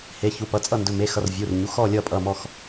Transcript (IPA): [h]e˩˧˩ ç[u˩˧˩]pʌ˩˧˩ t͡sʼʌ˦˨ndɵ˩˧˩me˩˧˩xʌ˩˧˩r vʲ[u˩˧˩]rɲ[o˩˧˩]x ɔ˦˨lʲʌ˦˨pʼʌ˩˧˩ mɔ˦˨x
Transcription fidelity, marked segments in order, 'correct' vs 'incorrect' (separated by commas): correct, correct, correct, incorrect